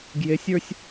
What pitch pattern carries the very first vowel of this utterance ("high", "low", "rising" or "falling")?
rising